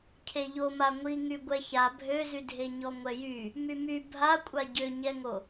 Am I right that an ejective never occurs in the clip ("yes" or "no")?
no